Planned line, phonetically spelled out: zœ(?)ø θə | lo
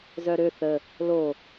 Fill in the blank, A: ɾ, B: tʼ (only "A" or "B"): A